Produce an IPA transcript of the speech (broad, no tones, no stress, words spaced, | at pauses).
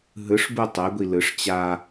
ɦɯʂbu tˤɛɡʷi lɯʂ t͡ɕa